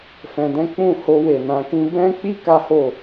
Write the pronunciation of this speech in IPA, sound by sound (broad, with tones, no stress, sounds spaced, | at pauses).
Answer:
f ɛ̃˧ d ɛ̃˦ k͡p ũ˦˨ h o˧ w e˨ n ã˧ k ĩ˦ b ɛ̃˦ k͡p i˦ k a˦ h o˦˨